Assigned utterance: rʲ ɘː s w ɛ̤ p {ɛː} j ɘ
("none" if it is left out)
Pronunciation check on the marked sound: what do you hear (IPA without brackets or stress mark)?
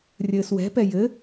ɛ